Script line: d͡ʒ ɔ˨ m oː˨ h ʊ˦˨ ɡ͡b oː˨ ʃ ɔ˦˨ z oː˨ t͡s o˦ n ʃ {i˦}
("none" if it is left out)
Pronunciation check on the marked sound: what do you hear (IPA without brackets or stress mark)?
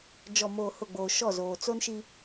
i˦